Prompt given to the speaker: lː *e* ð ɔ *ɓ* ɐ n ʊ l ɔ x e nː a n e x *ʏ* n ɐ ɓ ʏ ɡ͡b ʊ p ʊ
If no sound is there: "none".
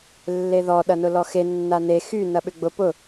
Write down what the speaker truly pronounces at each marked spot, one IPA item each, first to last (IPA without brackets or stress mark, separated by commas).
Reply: e, ɗ, y